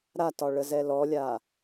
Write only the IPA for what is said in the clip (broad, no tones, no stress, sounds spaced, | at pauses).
ɾ a t ɒ ɭ ə z ɛ l ɔ lʲ a